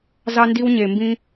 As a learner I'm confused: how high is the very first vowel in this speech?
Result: low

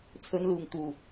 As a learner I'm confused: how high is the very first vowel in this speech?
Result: mid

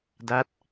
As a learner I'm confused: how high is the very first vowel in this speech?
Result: low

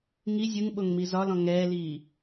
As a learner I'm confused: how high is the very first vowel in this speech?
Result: high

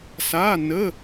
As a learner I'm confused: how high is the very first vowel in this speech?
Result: low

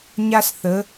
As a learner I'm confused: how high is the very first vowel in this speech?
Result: low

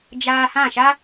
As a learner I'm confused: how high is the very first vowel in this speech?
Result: low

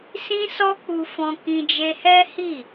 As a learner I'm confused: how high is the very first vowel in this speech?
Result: high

